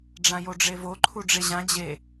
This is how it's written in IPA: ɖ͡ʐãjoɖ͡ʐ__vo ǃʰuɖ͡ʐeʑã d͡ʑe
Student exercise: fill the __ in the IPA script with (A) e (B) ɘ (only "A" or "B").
A